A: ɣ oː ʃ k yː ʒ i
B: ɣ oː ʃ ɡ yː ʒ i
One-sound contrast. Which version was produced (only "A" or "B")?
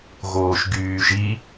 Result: B